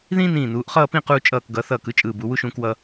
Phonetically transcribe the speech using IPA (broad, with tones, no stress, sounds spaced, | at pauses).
ð ĩː˥ n ĩː˧˩ n uː˩˧ ʔ χ ʌː˥˧ p ĩ˥˧ q uː˧ t͡ʃʼ ʌː˧˩ k ɡ ʌ˩˧ θ ʌː˧˩ k ɯ˥ t͡ʃʼ ɯː˧˩ b u˩˧ w u˥ ʃ ũː˧ k w ʌ˧